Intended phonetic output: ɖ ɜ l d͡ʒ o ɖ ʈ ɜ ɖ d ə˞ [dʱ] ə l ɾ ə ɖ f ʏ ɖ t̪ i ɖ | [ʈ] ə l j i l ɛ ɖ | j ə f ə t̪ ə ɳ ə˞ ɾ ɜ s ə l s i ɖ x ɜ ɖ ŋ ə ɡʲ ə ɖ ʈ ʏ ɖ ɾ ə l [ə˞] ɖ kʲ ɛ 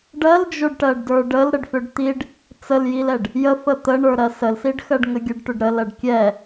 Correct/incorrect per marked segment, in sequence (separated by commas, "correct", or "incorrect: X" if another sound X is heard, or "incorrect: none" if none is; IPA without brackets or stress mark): incorrect: ɖ, incorrect: t͡s, incorrect: ɜ